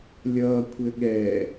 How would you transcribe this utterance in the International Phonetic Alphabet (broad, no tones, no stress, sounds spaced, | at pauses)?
lʲ ʌː kʷʰ ɘ ɠ ɛ